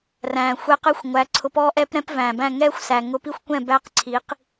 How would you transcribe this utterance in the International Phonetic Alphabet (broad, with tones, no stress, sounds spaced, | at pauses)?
r æ̃ː˨ xʷ ɛ˧ q ɛ˦ xʷ ŋʷ æ˨˦ ǀʰ ʊ˧ p ɔː˦ ʔ ɛː˦ p ɾ ɛ̃˦ p v æ̃ː˨ b æ̃˦˨ ŋ ɛː˦ xʷ s æ˨ ŋ ʊ˧ p i˦ xʷ kʷ ɛ̃˦˨ b æ˦ q ǀʰ i˨˦ q